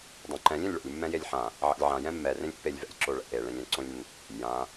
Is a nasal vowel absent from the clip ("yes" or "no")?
no